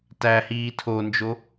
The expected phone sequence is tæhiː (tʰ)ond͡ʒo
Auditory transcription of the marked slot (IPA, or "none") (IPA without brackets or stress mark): tʰ